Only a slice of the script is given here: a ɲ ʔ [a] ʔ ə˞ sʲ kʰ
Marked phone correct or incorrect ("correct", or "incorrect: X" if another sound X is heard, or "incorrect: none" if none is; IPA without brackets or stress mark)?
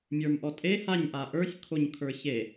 correct